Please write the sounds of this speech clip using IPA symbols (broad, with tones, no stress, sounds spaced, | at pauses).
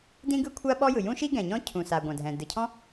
d ĩ˥ ɡ ɯ˥ kʷʰ a˥ ɓ ɔ˥ j ɯ˩ j ũ˥ ʃ i˥ ɡ ɛ̃˩ ɲ ɔ̃˥ cʰ ũ˩ s a˩ ɡʷ ã˩ dʱ ɛ̃˩ d ɯ˩ cʰ ɔ̃˥